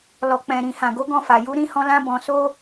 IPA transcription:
l ɔ˨ k͡p ɛ̃˨ ɾ ĩ˨ h ã˨ ɡ o˨˦ ɡ ɔ̃˦˨ f a˨ j u˨˦ ɾ ĩ˧ h ɔ̃˧ l ã˧ b ɔ̃˨ s o˧

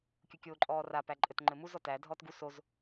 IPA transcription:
kʲ u kʲ oː ǃʼ ɔː r a p æ ǃʼ ɘ t ŋ͡ǃ ɘ m u z ɔ t æ dʱ ɔː t ɡ u s o z

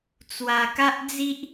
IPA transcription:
t͡s w a˧ k a˦ ʔ d͡z i˦ ʔ

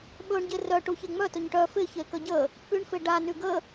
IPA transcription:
ɓ ɵ ɳ ɟ e r œ ʈ u ç e ŋ͡m œ t ɵ ɲ ʈ œ f ɪ ç e k ə ɟ ə | p y ɳ f ɪ ɖ a n y ɡ ə

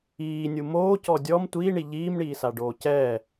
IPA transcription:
iː nʲ u m oː c ɔ dʲ ɔ m tʷ iː ɳ i ʎ iː m ɳ iː s a ɖ oː c ɛː

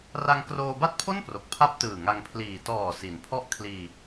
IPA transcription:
r a˧ ŋ k r oː˧ b a˥˩ t̚ pʰ o˥˩ n p r o˨˩ k̚ pʰ a˥˩ p̚ t ɯː˨˩ ŋ a˧ ŋ pʰ l iː˨˩ t ɔː˨˩ s i˩˦ n pʰ ɔ˦˥ ʔ kʰ l iː˧

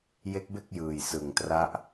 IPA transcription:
j e˦˥ k̚ b e˥˩ k̚ j ɯː˨˩ j s ɯ˨˩ ŋ t r a˦˥ ʔ

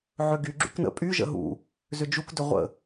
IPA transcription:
ʕ ø ɡ y ɡ͡ǁ y k n ə̰ pʼ y ʒ ə̰ ɦ ṵ | z ʏ d͡ʒ u k d ʏ ʁʷ ə̰

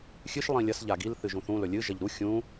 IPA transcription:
xʲ ɨ ʃ lˠ ĩ lʲ ɐ s ʎ a ɡ i l θ ɨ ʒ ũ θ ũ l ɵ lʲ ɨ ʒ ɐ ʎ ɾ u xʲ ũ

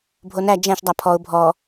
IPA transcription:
bʱ o n æ d͡ʒ æ̃ ʃ dˤ a pʰ ɔ ʊ̯ bʱ ɔ

